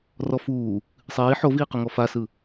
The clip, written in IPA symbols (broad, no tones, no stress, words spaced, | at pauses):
rɔ fuː | sˤiː ħoviːqʏŋɔ fasɯ